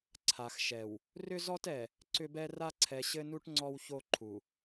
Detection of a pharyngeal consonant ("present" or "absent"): absent